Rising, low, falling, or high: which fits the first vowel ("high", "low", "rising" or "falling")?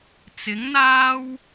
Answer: rising